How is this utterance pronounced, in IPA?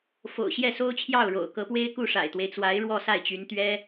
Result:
fo̰˨˩ʊ̯ɕjɛ˥˩so˥ʊ̯t͡ɕʰjɑ˥˩ʊ̯ ɻo̰˨˩ʊ̯kɤ˧˥pwe˥ɪ̯ ku˥˩ʂa̰˨˩ɪ̯t̪we˦ɪ̯t͡swa˧˥ɪ̯ ɻwɔ˥˧sa˥˩ɪ̯t͡ɕy˧˥nt̪ɥɛ˥

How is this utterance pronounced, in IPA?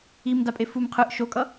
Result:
imdapʼef um qʰɯʔ ʃokʼʌ

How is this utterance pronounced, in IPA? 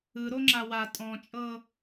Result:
ɯɾo ŋ͡ǁawa tʼɔ̃t͡ʃʼɤ

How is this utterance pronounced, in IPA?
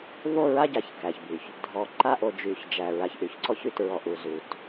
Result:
vo˦˨ɹa˦ɟa˨ç kæ˨çby˨ç | dʱɔ˨ ǃa˦ʔo˨ d͡ʒy˨çd͡ʒæ˨ ɹa˨çʔy˨çǀɔ˦çy˦˨t ɹɔ˨ʔu˨ zu˨t

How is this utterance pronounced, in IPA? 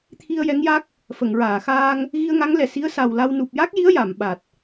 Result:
t̪ʰi˧ə̯jɛ˧˥ŋja˦˥k̚ | fə˨˩˨ŋɹaː˨˩˨xaː˧ŋ | ɣi˧ə̯ŋa˧˥ŋlɛ˨˩˨ si˧˥ə̯sa˨˩w la˧w nu˨˩p̚ja˦˥k̚ji˧˥ə̯ ja˨˩˨m ɓa˨˩t̚

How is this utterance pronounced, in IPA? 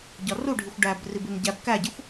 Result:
ɟɒruɖʱixʷ ɖæb ribenɟæb kæɟexʷ

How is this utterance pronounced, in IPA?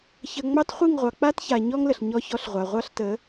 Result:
çə˨ ŋ͡mɑ˦tχʷi˦˨ŋʁʷɑ˨ k͡pa˦tça˨ ɲɔ˦ŋlə˨ɬ ɲɔ˦çɔ˦ɬʁʷa˨ ʁʷɑ˦ɬtə˨˦

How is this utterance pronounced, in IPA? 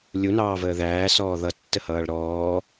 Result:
lʲunɑːvəː ðæːsɔː ðʌtːəhʌːɭ ɾɔː

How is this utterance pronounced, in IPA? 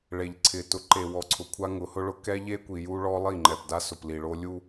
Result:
ɭe˨ʎǀʰɪ˨ tʊ˨ǃe˨wɔ˨ǀʰʊ˨ kʷʰa˦ŋʊ˨˦hʊ˦ɭʊ˦ kɛ˦ʎe˦kʷi˨ ju˦ɭɔ˦lˠi˦˨ ŋ͡ǃɛ˨pda˦sʊ˨pli˨ ɭo˦lʲu˦

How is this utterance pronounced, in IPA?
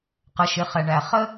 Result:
qə˩˧ʃɪ˩˧χɛ˩ɳæ˩ χə˥

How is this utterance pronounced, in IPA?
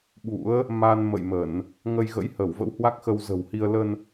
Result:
ɓṵ˧˥ə̯ | ma˧n mə̰˧˨jmə˧˩˨n | ŋə˧jɣə̰˧˥jhə˧˩w və̰˧˥whwa˦˥k̚xə˧w zə̤˨˩whi˧ə̯ lə˧n

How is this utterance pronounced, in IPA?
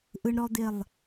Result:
ʔɯ˦ɳ ɾɔ˦ d̪ɪ˦˨lˠ

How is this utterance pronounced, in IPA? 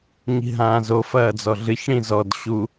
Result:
ɲi̤ɦãːzo fɐːd͡zɔɮɨç ɽĩzɔd ɕu

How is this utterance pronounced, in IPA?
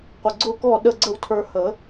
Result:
qʷə˨˩ɡ͡ǀʊ˥˨kɔ˥˨ ɗə˥˨ɡ͡ǀə˥˨wtʰə˞˧ hə˨˩˦

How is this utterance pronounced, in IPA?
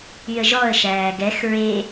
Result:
yə̯ʒɔə̯ ʃæːɡɛx ɹe

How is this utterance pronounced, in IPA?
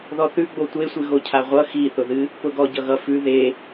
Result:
ðɔθʉ ɡ͡botʷe sʷɨɣocʰaʁʷʌ xiθʊðɨ | pʊɡɔ ɟʌɣʌ fʉ ðe

